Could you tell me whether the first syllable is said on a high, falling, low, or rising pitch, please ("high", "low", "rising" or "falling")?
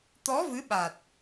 rising